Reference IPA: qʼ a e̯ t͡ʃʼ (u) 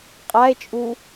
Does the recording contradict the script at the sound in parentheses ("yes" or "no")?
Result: no